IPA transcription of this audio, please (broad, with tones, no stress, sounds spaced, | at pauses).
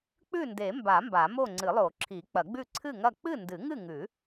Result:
k͡p ʉ˥˨ n d e˨˩˦ m b a˨˩˦ m b a˨˩˦ m o˥˨ ŋ͡ǀ ɨ˨˩˦ lˠ o˨˩˦ ǁʰ i˨˩˦ k͡p ɐ˨˩˦ ɡ͡b ʉ˥˨ ǀʰ ɨ˥˨ ŋ ɐ˥˨ k͡p ɨ˥˨ n d ɨ˨˩˦ ŋ ɨ˥˨ ŋ ʉ˨˩˦